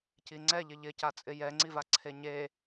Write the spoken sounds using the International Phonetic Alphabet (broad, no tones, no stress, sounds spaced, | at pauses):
c i ŋ͡ǀ ɛ ʎ ɪ ʎ ɪ c a t͡sʼ ɪ j ɛ ŋ͡ǀ i v a ǀʰ e ɲ e